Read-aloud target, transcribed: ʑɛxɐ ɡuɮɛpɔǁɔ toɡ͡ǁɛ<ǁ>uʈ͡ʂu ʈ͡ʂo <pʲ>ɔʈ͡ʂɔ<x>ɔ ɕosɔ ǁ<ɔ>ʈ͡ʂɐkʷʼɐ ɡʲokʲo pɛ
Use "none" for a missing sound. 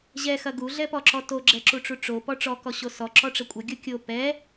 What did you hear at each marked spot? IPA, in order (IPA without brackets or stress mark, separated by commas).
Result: ǁ, p, k, ɔ